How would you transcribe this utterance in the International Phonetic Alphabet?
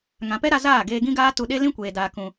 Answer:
ŋ ã˨ p ɛ˦ ɾ a˧ z aː˦˨ ɡ eː˧ ɡ ĩ˦ ɡ aː˦ t u˧ ɗ e˦ l ĩ˦ kʷ eː˨ d aː˨ k ũ˨

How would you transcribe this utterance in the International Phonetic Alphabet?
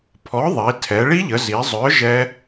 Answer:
pʰ ɔ˨˥ ðˤ i˩˧ tʰ ɛ˩˧ ɭ i˦˥ ʎ ə˩˧ z i˩˧ zˤ œ˨˥ ʒ ɛ˦˥

